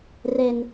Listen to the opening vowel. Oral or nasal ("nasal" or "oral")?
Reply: oral